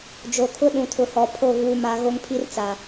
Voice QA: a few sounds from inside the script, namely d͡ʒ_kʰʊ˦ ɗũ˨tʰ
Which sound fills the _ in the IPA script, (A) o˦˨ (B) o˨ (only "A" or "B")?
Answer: B